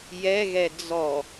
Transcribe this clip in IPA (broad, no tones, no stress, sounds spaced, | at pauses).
j ɛ ɣ ɛ d͡z ɔ